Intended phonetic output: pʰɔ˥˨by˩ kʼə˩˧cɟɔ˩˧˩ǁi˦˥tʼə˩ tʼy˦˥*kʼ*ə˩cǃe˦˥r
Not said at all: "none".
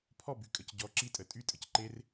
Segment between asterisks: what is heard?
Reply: tʼ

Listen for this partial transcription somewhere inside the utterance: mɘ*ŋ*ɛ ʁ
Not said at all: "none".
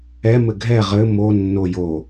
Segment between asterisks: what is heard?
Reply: ɡʱ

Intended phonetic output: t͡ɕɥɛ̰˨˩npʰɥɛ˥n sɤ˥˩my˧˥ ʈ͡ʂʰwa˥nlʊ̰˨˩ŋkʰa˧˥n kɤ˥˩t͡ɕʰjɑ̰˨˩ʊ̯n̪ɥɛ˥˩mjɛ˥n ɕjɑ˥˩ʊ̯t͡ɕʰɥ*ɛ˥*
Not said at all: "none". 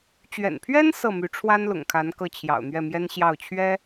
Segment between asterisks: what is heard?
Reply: ɛ˥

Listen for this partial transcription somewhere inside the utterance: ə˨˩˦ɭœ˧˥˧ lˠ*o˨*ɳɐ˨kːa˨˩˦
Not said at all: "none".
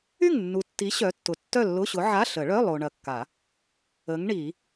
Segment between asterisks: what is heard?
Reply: o˨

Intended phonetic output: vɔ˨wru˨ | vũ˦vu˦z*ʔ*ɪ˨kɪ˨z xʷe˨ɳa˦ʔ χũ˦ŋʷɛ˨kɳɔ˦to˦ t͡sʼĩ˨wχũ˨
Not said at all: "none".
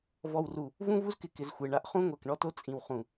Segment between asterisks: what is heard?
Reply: k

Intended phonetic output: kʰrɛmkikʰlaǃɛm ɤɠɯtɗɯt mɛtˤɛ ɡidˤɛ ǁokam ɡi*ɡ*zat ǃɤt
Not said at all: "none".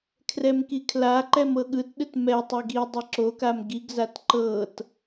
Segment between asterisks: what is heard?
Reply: ɡ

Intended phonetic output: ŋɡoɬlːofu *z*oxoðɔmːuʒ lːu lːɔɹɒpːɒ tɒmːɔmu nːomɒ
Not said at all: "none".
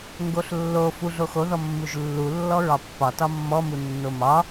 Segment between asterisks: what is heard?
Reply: ɮ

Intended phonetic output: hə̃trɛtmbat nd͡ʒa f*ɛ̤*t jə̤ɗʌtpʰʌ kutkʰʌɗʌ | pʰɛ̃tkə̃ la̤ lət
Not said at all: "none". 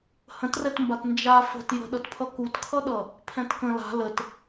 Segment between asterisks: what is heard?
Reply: ə̤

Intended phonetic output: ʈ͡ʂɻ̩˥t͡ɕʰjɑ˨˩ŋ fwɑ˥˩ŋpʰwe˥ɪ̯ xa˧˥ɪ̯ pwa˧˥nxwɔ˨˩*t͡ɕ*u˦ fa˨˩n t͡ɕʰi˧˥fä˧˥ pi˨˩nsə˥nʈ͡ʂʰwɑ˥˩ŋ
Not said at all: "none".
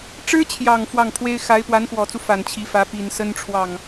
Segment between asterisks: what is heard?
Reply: t͡s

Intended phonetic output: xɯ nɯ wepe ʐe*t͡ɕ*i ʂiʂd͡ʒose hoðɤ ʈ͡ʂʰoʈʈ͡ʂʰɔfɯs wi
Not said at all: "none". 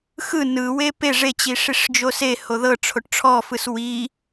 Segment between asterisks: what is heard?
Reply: t͡ɕ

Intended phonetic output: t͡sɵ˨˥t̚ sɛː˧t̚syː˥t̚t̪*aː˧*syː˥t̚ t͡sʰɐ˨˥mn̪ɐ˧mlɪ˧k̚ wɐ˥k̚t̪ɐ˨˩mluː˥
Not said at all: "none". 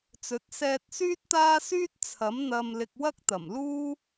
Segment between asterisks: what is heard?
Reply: aː˥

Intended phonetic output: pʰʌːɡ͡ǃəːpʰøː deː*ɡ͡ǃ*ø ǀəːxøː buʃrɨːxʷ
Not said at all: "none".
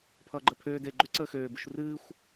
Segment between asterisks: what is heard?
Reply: ɡ͡ǃ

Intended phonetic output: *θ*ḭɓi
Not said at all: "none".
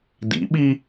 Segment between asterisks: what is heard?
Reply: d̪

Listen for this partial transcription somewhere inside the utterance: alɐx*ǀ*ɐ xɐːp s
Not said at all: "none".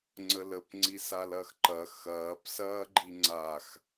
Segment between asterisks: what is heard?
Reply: ǃ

